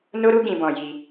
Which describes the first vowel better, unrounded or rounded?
rounded